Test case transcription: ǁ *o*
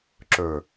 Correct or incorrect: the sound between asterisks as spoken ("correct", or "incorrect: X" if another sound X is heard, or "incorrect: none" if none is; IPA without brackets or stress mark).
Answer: incorrect: ɵ